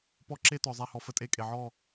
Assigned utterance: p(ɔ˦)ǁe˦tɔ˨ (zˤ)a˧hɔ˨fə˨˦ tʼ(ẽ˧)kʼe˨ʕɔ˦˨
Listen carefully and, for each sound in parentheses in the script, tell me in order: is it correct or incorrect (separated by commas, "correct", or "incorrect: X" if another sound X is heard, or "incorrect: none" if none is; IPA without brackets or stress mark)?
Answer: correct, correct, incorrect: e˧